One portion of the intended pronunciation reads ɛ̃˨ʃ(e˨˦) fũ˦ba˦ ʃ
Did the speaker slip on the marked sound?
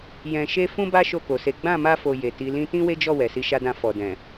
yes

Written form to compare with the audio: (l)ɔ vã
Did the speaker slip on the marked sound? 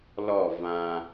no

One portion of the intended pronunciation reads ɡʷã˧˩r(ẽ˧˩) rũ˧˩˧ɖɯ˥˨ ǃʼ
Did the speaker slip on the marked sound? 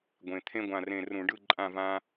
no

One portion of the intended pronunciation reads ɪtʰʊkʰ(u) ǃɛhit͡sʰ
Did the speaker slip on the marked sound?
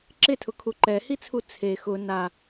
no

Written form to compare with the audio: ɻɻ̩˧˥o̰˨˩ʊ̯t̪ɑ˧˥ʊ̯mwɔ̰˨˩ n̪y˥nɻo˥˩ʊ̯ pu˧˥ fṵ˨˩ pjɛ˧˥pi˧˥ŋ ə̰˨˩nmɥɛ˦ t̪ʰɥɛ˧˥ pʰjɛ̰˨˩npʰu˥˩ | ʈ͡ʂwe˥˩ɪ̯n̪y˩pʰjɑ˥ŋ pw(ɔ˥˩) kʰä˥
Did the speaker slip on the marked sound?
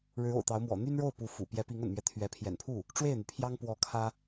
yes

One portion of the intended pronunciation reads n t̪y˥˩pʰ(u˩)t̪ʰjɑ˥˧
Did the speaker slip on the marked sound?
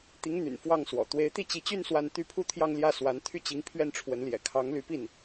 yes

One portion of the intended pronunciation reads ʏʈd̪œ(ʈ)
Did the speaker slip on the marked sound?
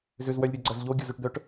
no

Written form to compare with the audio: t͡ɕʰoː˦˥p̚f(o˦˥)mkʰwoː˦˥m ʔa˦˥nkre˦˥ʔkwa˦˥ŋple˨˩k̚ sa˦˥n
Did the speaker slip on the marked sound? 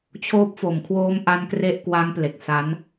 yes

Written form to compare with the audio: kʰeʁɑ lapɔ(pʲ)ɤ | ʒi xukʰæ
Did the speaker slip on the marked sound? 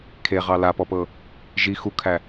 yes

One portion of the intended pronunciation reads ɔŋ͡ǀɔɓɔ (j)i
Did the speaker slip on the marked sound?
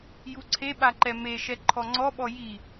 no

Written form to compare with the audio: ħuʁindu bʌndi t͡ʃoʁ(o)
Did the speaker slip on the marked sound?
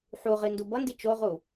yes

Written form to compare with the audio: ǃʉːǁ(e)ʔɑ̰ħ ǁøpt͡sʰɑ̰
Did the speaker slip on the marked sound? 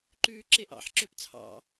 no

